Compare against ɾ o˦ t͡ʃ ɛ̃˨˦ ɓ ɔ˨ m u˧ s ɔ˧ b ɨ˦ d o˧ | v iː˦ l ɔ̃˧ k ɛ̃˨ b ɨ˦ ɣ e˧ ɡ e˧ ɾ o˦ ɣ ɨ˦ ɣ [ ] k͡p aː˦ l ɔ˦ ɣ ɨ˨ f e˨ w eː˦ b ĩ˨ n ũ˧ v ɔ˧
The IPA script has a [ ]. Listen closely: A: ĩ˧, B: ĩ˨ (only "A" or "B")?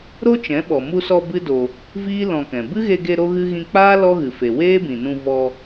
A